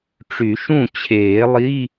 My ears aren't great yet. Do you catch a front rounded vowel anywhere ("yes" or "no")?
yes